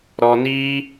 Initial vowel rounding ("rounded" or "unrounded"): rounded